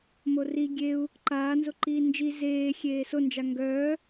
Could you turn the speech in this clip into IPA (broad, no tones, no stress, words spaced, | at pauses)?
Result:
mori ɡʲeu̯ | ǃaːnzoǃiː nd͡ʒi zeː xʲeːsond͡ʒa ŋɡœː